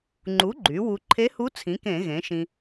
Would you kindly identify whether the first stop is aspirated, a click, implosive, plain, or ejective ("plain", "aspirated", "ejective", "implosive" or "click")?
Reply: click